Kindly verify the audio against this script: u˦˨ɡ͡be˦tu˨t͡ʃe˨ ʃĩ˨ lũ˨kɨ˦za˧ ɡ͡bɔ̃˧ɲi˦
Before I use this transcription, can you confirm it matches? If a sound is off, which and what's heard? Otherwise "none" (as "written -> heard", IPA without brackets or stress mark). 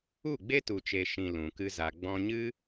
i˦ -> ɨ˦